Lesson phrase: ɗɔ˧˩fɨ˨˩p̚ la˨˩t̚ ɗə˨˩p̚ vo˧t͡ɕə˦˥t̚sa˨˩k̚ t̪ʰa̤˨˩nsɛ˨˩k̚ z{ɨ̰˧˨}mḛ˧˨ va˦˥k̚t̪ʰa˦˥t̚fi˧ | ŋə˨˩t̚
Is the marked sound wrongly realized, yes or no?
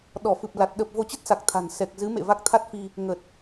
yes